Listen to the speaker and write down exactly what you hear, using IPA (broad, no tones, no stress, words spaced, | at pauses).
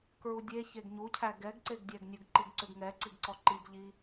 kɹudʲe çeɡɲucʰæ ɡɛɡǀeɡdʲæɡnʲuɡ ǃiɡǀʏɡŋɛ ǀiɡǀɔǃiɡ ʎi